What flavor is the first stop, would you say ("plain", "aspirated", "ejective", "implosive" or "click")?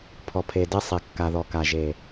aspirated